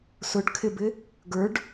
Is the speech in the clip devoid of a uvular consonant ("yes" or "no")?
yes